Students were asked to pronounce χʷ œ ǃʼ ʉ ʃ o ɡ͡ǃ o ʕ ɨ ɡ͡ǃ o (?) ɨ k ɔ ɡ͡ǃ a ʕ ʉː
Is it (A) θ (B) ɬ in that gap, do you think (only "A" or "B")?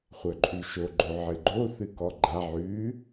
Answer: A